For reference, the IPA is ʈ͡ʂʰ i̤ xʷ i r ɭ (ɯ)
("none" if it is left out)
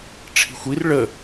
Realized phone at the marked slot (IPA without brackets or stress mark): ə